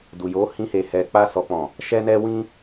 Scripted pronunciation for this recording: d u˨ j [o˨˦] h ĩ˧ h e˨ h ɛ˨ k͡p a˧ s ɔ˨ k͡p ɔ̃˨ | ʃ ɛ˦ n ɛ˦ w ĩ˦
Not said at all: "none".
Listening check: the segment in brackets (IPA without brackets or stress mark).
o˨˦